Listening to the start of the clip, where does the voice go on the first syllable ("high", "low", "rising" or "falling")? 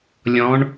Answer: rising